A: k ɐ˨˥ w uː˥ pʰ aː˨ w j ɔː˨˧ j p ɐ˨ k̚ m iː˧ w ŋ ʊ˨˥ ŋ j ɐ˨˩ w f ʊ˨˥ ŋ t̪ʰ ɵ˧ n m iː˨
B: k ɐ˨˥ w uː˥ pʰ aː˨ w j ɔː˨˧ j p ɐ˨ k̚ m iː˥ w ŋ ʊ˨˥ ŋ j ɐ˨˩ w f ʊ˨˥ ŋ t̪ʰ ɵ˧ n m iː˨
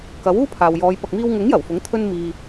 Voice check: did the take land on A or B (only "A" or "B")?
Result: A